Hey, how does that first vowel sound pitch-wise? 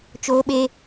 high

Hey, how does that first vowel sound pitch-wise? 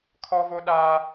high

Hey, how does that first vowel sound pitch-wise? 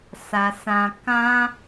low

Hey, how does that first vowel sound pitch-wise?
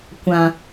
low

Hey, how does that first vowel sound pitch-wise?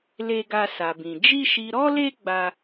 high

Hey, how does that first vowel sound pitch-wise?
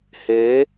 rising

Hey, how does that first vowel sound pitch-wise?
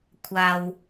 low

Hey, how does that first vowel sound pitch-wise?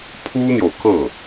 high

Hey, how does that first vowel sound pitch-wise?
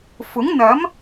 rising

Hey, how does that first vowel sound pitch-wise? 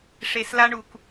low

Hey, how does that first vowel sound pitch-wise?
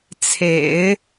low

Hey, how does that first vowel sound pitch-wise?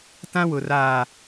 high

